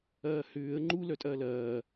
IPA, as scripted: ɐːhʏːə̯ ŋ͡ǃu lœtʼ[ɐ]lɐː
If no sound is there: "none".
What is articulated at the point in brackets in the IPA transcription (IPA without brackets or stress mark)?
ɐː